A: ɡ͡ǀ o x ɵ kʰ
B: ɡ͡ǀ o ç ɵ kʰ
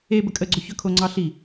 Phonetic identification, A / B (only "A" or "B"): B